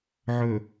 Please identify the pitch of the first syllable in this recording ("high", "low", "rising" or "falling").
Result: low